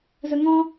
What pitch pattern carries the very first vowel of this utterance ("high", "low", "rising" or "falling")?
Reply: low